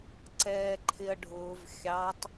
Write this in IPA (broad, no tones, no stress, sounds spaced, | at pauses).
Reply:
ǀ ɛː ǃʰ ɪ ɐ̯ ɖʱ ʊː v xʲ ɑ tˤ